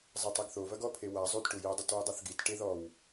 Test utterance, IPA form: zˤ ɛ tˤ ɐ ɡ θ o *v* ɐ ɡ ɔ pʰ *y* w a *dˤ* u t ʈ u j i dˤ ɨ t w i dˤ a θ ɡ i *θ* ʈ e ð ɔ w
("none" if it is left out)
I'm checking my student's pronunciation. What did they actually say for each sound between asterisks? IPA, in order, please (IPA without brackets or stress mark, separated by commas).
v, e, zˤ, t